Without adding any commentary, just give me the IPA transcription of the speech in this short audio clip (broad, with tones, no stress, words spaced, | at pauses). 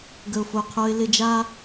ɡə˨ʊ̯fo˨qʰo˧ɪ̯ lɪ˧d͡ʒa˦